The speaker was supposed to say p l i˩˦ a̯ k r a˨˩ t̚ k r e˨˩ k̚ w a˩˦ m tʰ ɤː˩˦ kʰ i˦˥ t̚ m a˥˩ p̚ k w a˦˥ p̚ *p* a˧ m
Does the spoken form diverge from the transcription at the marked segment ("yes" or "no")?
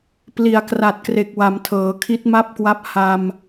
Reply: yes